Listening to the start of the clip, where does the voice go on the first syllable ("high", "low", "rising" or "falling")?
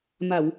low